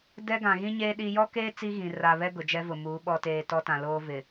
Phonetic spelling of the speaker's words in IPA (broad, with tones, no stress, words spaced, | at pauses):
dɛ˦ɡã˨ ɣĩ˦ɲeː˦ ɗi˦ jɔ˦keː˦ t͡si˦ɣĩ˨ ra˨βɛ˦ ɡʊ˨d͡ʒɛ˦vʊ˨ muː˨˦ ɓɔ˨teː˨ tɔ˦tã˨ loː˦vɪ˨